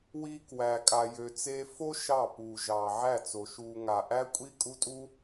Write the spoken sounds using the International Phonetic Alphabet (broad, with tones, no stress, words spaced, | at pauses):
wi˧kwæ˨ kʼa˨jø˨t͡seː˧fo˦ ʃɑ˦˨puː˨ ʒɑː˨ʕæ˦˨t͡so˨ʃuː˧ ŋa˨ʔæ˦ kʷʼi˦kʼu˦tʼu˦